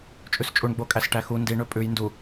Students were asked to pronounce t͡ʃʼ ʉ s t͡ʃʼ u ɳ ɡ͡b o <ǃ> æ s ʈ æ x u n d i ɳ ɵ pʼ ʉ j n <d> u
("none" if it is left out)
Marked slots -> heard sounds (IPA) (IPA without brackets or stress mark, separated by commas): kʼ, d